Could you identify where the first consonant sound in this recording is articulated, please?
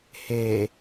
glottal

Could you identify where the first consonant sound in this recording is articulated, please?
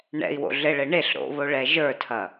retroflex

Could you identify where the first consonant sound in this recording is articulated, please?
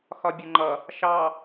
velar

